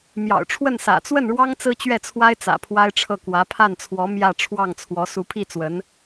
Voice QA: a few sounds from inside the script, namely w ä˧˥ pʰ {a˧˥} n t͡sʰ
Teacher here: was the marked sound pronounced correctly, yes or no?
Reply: no